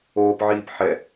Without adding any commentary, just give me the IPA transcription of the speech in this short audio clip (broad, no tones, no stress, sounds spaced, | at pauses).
oː p ʕ iː p ħ ɛ